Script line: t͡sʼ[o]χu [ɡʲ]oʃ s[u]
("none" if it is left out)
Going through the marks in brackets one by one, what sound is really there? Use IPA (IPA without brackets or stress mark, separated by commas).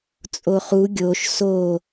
o, ɡʲ, o